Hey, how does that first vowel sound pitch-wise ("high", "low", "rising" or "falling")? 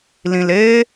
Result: low